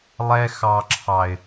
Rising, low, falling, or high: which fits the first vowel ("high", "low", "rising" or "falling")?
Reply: high